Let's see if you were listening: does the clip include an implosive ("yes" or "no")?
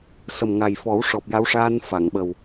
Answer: yes